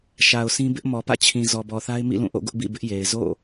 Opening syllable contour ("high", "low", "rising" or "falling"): low